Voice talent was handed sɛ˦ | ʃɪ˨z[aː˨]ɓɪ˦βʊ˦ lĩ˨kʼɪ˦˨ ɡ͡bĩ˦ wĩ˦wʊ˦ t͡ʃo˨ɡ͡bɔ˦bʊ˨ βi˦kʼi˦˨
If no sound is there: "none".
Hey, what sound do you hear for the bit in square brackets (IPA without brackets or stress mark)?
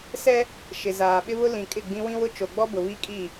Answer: aː˨